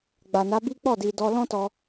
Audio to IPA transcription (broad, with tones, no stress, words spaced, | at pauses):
ɡ͡ba˨na˨˦bi˦ k͡pɔ˦˨di˨dɔ˧ lɔ̃˦tɔ˧